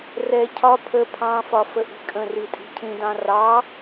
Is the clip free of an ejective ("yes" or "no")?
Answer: no